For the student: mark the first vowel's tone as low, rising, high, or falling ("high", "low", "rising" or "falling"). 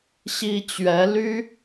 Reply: high